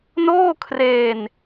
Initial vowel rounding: rounded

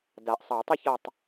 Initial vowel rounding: unrounded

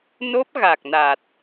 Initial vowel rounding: rounded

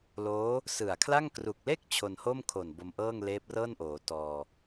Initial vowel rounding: rounded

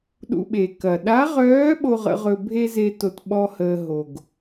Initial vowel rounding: rounded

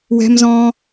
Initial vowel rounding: unrounded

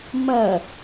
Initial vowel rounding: unrounded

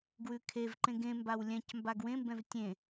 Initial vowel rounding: rounded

